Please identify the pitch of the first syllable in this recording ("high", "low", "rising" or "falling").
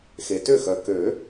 low